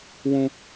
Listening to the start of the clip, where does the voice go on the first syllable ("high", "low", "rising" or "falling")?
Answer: high